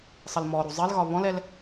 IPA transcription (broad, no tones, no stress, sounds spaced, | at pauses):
sˤ ə l m ɔ ɾ u zˤ ɪ l ɣ ɒ β ɔ̃ l ɛ l